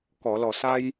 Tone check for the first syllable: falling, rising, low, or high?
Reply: low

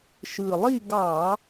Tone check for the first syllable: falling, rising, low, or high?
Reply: low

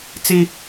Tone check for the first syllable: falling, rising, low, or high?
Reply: high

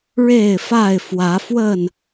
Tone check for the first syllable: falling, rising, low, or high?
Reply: falling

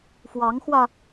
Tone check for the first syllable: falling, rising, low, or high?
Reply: rising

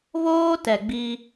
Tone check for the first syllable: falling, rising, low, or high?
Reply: high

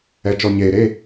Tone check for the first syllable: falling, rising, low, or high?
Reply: low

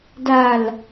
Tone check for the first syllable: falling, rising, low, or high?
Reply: low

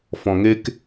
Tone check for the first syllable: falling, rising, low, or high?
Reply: low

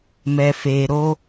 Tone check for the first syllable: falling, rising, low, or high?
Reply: low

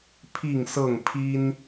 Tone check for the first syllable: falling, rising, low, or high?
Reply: falling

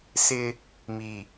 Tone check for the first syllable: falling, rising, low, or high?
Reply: high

